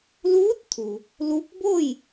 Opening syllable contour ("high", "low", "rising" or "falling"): rising